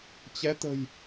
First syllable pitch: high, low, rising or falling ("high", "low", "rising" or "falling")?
rising